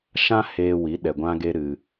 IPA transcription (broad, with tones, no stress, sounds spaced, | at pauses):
ʃ ã˦ h eː˧ w i˨˦ ɗ ɛ˧ ɡʷ ã˦ ɡ e˦ ɾ ɨ˧